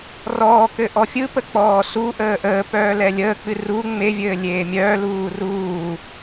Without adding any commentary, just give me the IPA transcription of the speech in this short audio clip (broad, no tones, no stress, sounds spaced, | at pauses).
r ɔː k ɘ ʔ ɔ fʲ ɯ p ə k͡p ɔː s u ʔ əː ʔ əː p œː l ɛ lʲ əː k͡p ɨ r u ŋ͡m e vʲ ɘː lʲ eː mʲ œː l uː r uː